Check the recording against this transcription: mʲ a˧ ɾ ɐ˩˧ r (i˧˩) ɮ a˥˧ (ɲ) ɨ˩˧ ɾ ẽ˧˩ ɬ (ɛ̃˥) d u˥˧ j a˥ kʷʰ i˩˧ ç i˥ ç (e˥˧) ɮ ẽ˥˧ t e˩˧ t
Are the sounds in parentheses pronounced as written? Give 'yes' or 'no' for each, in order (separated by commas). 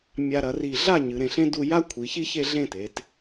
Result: yes, yes, no, yes